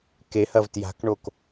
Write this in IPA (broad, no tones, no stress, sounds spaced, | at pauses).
k e h ɐ v t j a̤ k ɳ o k